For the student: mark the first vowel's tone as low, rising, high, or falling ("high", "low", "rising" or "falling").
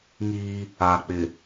high